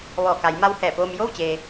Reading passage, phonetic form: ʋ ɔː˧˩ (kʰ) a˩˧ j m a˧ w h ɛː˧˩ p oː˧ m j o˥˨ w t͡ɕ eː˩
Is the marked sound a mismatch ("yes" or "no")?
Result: yes